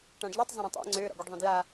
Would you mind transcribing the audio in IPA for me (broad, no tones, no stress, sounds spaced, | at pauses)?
ʈ ã ɖ ʎ u tˤ zˤ ə̃ ɾ õ tˤ ḛ ŋ͡ǀ ø ɾ ɔ̰ ɡ u ɖ ðˤ õ d j a